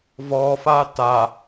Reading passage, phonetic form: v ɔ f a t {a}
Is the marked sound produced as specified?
yes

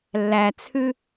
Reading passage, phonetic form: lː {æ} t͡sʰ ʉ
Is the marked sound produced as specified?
yes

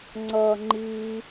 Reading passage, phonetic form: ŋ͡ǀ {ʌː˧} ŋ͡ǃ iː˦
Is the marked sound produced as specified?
yes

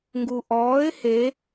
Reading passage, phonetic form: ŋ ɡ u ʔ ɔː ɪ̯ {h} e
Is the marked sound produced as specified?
yes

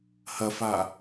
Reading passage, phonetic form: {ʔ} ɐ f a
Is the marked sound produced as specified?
no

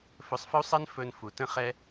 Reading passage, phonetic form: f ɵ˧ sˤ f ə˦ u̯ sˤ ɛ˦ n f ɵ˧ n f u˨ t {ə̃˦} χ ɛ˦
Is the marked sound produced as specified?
yes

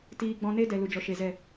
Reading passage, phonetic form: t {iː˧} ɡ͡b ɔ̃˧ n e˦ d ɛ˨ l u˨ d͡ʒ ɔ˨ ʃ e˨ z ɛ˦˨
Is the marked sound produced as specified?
yes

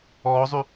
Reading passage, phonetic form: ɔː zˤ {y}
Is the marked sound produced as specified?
yes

